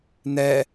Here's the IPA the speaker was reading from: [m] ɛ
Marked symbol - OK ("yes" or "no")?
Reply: no